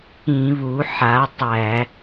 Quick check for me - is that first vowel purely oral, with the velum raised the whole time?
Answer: no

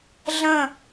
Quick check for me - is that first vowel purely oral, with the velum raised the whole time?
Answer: no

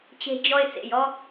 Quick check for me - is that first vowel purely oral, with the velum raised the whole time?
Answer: yes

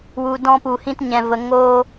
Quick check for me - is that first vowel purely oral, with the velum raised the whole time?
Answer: yes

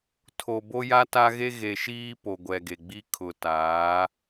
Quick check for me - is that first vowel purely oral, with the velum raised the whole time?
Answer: yes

